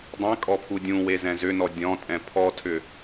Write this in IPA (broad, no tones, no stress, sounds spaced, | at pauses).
dˤ ẽ kʼ ɔ pʰ u dʲ ũ w e z ɛ̃ z ʏ n ɔ dʲ ɔ̃ tʼ ɛ̃ pʰ ɔ tʰ ʏ